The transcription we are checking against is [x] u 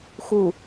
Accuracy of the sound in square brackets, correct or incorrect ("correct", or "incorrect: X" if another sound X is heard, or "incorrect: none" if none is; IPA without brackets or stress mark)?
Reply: correct